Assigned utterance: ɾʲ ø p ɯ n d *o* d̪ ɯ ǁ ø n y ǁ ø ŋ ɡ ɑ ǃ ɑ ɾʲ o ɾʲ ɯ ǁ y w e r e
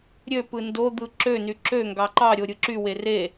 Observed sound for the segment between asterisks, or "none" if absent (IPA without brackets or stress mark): o